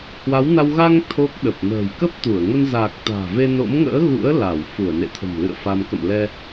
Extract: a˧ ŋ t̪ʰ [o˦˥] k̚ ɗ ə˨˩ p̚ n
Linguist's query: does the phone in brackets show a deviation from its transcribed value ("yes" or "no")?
no